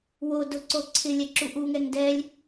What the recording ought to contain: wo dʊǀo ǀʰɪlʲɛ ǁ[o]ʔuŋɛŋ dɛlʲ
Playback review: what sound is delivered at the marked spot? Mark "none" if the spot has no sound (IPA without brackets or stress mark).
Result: u